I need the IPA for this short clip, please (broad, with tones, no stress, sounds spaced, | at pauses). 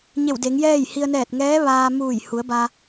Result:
ɲ e˧˩ w d e˩˧ ŋ j ɛː˥˨ j h i˧ ə̯ n ɛː˧˩ t̚ ŋ ɛː˧˥ ʋ aː˧ m uː˧˩ j h u˩˧ ə̯ b a˧